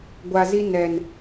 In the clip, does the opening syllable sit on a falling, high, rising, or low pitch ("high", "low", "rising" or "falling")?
low